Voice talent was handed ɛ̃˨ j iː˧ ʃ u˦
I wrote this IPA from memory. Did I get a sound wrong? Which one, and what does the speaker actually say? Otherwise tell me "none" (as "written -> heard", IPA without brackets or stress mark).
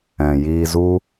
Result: ʃ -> z